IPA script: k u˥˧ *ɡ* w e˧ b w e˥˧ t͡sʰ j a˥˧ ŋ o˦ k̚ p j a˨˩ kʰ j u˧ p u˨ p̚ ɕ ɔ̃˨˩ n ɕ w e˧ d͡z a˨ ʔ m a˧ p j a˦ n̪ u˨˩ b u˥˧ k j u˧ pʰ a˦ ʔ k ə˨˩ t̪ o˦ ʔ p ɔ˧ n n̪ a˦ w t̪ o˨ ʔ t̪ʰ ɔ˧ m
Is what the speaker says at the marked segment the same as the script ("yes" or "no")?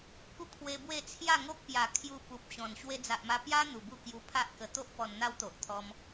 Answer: no